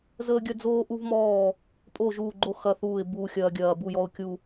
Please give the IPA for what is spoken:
zəː˦ɡʲɐ˦d͡zoː˦ ʔu˦vmɔː˦˨ | pʼo˦˨ ʒuː˦˨ɡ͡ǃo˦ xɐ˦θuː˦˨ɪ̯ buː˦xʲɐː˦ɡʲɐː˦˨ bu˦˨jɔ˦˨ʊ̯kʲu˦˨

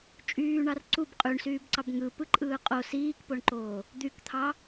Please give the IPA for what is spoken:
t͡ʃʼyːɳɑr ǀub qʼyɳsyːbǀɑb ŋɯpɯǃʼɯː qʼo siːkpoɳǃoː | d̪ykt̪ʰɑ

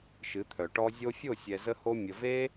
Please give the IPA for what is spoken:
ʃɨ˨˦t̪ʰœ˨ʈɔ˦ zʲo˧fʲo˦˨ sʲɛ˨zə˧ho˧ mʲə˨ve˦

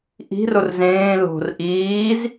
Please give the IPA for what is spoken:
ʔi̤ rorzẽː lo̤r ʔiːz

